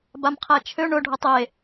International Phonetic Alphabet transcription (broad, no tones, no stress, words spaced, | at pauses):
bamqʰæt͡ʃʰø ɳʊ ɖʱʊtˤe